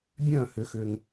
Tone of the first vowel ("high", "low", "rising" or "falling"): falling